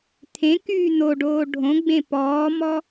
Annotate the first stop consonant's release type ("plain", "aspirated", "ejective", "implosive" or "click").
aspirated